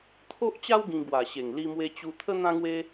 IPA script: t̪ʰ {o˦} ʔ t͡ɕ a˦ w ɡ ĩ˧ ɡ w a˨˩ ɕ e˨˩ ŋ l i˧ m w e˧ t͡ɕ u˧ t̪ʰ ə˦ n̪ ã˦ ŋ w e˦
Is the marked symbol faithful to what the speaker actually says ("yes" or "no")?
yes